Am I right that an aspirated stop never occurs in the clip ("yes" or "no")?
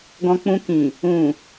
yes